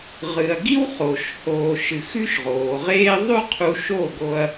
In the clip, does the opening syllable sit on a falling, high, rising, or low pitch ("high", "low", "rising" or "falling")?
low